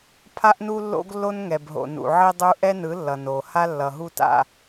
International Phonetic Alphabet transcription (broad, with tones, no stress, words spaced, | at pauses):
pʰa˦ʔnu˦lːo̰˦ɡ lːo˦nŋɛ˨bɦo̰˨ nṵ˨ʕi˦dˤu˦ ʔɛ˦nɯ˨˦ lːʌ˨noː˨ ha˦lːʌ˨ɦu˦ta̰˦˨